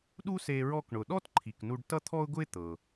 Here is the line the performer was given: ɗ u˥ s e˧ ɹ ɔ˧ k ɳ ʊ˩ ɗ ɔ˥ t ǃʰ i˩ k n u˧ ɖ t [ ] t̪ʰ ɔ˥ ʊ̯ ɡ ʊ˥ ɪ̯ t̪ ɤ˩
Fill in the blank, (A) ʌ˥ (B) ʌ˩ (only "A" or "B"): A